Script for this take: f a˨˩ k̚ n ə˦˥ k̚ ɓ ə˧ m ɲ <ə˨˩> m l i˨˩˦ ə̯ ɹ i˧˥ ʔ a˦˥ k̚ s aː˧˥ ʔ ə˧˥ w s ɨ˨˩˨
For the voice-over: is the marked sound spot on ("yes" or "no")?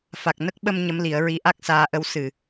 no